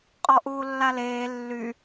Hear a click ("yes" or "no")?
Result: no